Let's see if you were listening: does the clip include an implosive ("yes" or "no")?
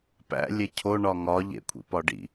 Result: no